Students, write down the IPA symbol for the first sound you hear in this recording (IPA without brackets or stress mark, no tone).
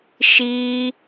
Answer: ʃ